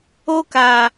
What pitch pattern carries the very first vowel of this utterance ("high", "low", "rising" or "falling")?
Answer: high